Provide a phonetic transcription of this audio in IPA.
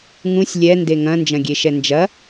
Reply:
ŋ ũ sʲ lʲ ɛ n d e ŋ ɐ̃ n d͡ʒ ɐ̃ ɡʲ e ʃ ɛ n d͡ʒ ɐ

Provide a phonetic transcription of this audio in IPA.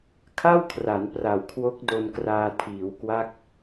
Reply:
kʰ a˥˩ w kʰ r a˩˦ n p r a˨˩ w kʰ w o˦˥ k̚ d o˧ n k r aː˧ tʰ iː˩˦ w k w a˦˥ k̚

